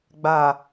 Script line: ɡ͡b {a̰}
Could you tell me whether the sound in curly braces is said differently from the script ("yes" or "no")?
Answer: yes